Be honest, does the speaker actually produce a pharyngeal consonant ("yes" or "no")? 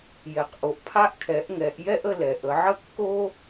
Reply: yes